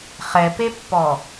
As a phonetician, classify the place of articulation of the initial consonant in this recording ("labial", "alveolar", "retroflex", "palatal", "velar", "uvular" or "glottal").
uvular